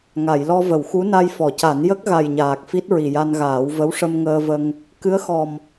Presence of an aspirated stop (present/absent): absent